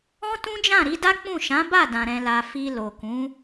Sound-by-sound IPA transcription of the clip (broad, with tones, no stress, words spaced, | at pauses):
ɔ̃˦tũ˦d͡ʒã˦˨ ɾi˨˦da˦k͡pũ˦˨ ʃã˨˦ba˦˨dã˨ ɾɛ̃˨la˨ fi˧lo˨kũ˨˦